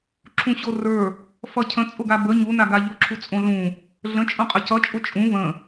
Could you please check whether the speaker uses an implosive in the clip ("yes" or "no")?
no